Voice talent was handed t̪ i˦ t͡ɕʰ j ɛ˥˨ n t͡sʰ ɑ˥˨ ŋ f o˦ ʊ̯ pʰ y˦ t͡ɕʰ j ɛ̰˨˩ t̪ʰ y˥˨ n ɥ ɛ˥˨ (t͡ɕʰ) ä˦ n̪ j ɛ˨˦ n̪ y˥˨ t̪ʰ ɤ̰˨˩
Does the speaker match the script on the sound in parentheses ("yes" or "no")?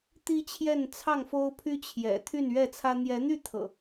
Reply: no